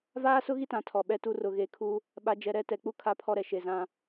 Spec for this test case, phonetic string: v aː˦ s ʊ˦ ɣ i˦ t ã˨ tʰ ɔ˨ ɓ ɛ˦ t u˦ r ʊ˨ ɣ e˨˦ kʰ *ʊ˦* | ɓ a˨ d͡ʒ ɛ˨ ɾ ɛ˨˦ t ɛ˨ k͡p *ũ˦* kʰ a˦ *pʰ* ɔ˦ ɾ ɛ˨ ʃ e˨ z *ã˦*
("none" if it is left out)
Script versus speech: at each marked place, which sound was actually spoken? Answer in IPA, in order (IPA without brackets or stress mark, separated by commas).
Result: u˦, u˦, pʰ, ã˦